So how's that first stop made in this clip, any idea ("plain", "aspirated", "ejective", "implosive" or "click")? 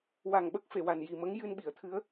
implosive